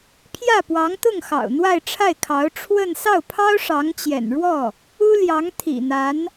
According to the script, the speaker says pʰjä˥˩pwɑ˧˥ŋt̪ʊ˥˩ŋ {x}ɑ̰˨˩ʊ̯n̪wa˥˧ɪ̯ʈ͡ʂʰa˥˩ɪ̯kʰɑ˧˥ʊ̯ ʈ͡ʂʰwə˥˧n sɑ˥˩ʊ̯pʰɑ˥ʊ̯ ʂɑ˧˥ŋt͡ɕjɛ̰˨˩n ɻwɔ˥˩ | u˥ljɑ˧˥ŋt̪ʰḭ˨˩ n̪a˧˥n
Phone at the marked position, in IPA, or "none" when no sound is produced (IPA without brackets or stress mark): x